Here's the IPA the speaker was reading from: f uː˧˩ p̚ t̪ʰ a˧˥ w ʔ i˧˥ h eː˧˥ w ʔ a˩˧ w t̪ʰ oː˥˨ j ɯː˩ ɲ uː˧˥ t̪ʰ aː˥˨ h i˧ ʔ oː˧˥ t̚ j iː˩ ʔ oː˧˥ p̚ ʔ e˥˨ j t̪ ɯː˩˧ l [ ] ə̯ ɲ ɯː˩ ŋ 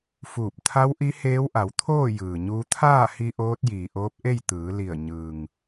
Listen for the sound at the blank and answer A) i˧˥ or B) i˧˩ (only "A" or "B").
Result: B